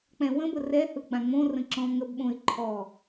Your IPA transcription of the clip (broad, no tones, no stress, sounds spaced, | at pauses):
k͡p ɛ̃ w ə̃ b ə r ɛ h ɯ ɡ͡b ã ŋ͡m õ r ə̃ ǁ ɔ̃ ŋ ə b ɓ õ ɪ̯ ǃʰ ɔ